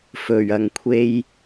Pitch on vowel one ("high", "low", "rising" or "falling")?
low